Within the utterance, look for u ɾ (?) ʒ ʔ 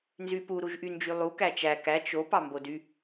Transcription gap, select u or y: u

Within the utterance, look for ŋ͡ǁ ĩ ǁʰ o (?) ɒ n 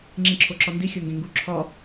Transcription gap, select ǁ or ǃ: ǁ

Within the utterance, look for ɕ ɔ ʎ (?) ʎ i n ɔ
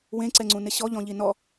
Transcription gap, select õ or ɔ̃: ɔ̃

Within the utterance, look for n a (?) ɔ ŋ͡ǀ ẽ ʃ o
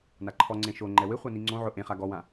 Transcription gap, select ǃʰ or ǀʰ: ǃʰ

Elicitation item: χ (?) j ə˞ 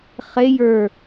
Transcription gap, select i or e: e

